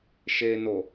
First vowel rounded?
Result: no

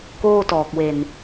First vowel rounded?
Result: yes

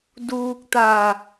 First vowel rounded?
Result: yes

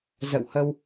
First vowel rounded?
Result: no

